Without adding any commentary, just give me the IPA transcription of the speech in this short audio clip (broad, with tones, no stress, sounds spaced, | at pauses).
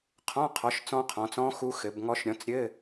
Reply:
qʰ ɔ̃˧˥˧ qʰ ɔ˨˦ ʃ t͡s ɔ̃˦˥ qʰ ɔ̃˨˦ t͡s ɔ̃˦˥ x u˦˥ x ɘ˨˦ b ŋ ɔ˦˥ ʃ ɾʲ ɔ̃˨˦ t͡s ɾʲ ɘ˧˥˧